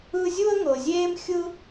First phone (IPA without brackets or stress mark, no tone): ɯ